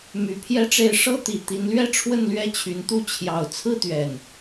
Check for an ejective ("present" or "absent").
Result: absent